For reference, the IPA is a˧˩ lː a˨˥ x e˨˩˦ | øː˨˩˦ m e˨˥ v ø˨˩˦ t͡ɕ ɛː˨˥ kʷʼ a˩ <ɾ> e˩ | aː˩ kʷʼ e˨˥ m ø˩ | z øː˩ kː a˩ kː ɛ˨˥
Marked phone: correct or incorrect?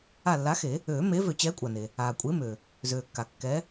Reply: incorrect